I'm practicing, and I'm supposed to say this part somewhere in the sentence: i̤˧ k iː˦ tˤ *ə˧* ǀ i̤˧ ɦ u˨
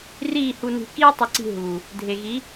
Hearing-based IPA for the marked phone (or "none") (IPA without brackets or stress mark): ə˧